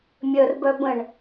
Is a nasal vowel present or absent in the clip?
present